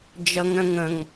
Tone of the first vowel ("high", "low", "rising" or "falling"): high